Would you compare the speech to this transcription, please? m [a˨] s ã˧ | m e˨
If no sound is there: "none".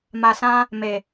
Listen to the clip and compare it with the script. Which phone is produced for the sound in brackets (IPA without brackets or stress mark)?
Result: a˨